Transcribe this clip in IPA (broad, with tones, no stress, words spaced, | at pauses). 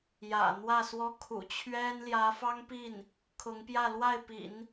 jä̰˨˩n̪wä˥˩swɔ˥ kʰṵ˨˩t͡ɕʰɥɛ˥n ljä˧˥fɑ˥ŋpi˥˩n | kʰʊ˧˥ŋpjä˥˧lwa˥˩ɪ̯ pḭ˨˩˦n